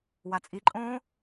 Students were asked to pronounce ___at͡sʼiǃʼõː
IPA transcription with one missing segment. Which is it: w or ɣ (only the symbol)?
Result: w